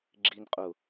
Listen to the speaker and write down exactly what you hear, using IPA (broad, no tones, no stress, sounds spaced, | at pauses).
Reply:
ɡ͡ǁ i n qʼ ʊ